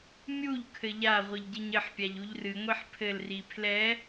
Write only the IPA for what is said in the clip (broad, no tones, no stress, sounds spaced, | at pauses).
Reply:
mʲ u ʎ kʰ ɘ ʎ a ʁʷ ɨ ʎ ɟ ɘ ɲ ɘ ħ pʲ a ʎ u ʎ r ɨ ŋʷ i ħ pʰ ɘ l r i pʰ l ɛ